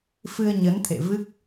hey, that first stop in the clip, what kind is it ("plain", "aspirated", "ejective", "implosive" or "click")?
aspirated